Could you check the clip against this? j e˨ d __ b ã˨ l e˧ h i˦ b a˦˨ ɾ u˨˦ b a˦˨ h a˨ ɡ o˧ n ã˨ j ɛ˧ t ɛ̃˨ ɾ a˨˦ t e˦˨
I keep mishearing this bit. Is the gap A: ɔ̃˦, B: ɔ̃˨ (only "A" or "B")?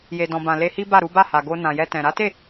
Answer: B